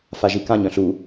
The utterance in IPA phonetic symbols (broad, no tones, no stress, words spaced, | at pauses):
faʒikãɲ œ̃ɬu